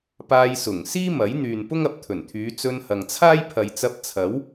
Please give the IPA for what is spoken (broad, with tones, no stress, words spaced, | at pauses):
paː˧jsʊ˨˩ŋ siː˥mɐ˨˥jn̪yː˨n pʊ˥ŋɐ˨p̚t̪ʰɵ˨˩nt̪ʰyː˨˧ t͡sɵ˧nhɐ˨ŋt͡sʰaː˥j pʰɐ˨jt͡sɐ˧p̚t͡sʰɐ˨˥w